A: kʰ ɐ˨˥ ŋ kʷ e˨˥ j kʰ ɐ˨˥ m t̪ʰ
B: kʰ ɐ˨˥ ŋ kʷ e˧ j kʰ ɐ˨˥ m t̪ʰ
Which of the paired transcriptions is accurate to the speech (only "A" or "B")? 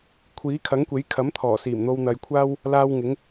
A